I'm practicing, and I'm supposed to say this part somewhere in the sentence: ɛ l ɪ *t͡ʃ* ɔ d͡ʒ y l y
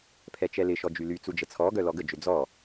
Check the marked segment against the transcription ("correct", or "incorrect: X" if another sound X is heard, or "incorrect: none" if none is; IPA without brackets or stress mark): incorrect: ʃ